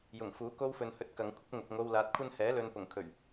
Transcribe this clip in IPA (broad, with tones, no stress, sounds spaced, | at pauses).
j ʊ˨˩ ŋ f uː˨˥ k o˥ w f ɵ˨ n h ɵ˧ t̚ k ɐ˨˧ ŋ kʷʰ ɪ˥ k̚ ŋ ʊ˨ k̚ ŋ o˧ w l aː˨ t̚ kʷʰ ɐ˥ n h ɛː˨˥ l ɵ˨ n p ʊ˨˩ ŋ kʰ ɵ˨˩ ɥ